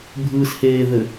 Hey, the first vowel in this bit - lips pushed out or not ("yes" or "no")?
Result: no